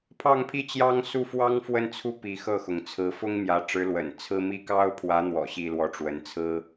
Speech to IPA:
pʰ ɑ˥˧ ŋ pʰ i˥˩ t͡ɕ j ɑ˥ ŋ s u˥˩ f w ɑ˥ ŋ f w ə˥˧ n t͡sʰ u˥˩ p i˧˥ x ɤ˥˩ x ʊ˩ ŋ t͡sʰ ɹ̩˧˥ f ʊ˥ ŋ m j ä˧˥ ʈ͡ʂ ɻ̩˧˥ l w ə̰˨˩ n t͡sʰ ɹ̩˥ m i˥ k ɑ˥ ʊ̯ pʰ w ä˧˥ n̪ w ɔ̰˨˩ ɕ i˥ l w ɔ˥˩ ʈ͡ʂ w ə˧˥ n t͡sʰ ɹ̩˥

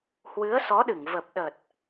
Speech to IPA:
h w ɨ˨˦ ə̯ s ɔ˨˦ ɗ ɨ˧˩ ŋ v ə˨˩ p̚ ɗ ə˨˩ t̚

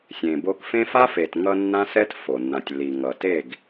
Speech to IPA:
sʲ ẽ˨ b o˧ k f ẽ˦ f a˦ f e˨ t ŋ ʌ˧ nː ã˦ s ɛ˦ t f o˨ nː ã˨ tʲ lː i˨ ŋ ʌ˨ t e˦˨ ɡ

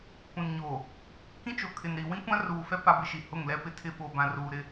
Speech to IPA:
kʷ ĩ˨ n ɲ oː˨ | k ĩ˦ t͡ʃ o˨ kʰ ɪ˨ n ɾ i˨ w ĩ˦ kʷ ã˦ r uː˨ f ɛ˦ p a˦ b ɪ˦ ʃ i˨ h ʊ˦˨ ŋ l ɛ˦ p ɪ˦ tʰ ɪ˦ ɓ o˨ b ã˨ r uː˨ ɾ ɪ˦

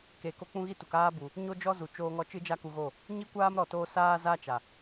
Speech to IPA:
k e˨ k o˧ k͡p ũ˧ ɣ i˦˨ t u˨ k aː˧ b u˨ | ɲ o˦ d͡ʒ ɔ˦ z u˨ t͡ʃ oː˧ ŋ ɔ˧ t͡ʃ ɨ˦ d͡ʒ a˦ k u˧ ɣ o˦˨ | ɲ i˦ kʷ aː˦ m ɾ ɔ˨ t oː˧ s aː˦ z a˦ t͡ʃ a˨

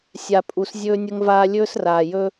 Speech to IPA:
sʲ a˨ pʼ u˨ s zʲ ɵː˧ nʲ ə˧ ŋ v aː˧ lʲ ɵː˦ s r aː˨ j ɵː˦

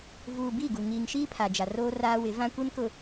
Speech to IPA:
v uː˨ b i˦˨ ɡ u˨ ŋ iː˨ ŋ ʃ iː˦ pʰ a˨ d͡ʒ a˨ r oː˦ r aː˦ w ɪ˨˦ v ã˦ kʷ e˦ n k ʊ˨

